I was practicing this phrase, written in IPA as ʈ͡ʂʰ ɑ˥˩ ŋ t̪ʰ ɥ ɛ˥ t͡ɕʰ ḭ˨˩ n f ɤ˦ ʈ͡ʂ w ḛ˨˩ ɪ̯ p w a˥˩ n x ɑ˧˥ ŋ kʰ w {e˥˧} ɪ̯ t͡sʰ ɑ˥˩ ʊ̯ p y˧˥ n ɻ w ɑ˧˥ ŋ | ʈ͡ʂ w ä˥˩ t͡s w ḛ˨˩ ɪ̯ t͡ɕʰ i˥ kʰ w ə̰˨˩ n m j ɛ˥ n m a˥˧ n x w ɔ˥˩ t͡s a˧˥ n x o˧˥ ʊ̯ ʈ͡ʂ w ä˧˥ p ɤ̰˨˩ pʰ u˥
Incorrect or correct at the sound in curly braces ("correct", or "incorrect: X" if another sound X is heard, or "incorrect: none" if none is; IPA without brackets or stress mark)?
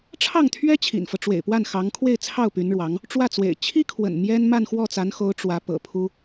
correct